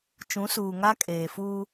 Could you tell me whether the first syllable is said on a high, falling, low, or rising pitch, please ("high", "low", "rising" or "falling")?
rising